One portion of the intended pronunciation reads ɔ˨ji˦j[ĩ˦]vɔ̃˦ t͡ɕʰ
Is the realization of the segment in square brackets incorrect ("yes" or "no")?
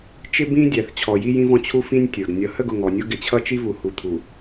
no